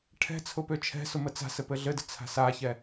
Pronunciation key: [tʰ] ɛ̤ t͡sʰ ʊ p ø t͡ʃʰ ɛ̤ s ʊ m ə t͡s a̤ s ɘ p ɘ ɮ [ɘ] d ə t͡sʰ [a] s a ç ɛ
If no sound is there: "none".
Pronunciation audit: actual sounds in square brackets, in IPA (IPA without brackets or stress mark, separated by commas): ʈʰ, ɘ, a̤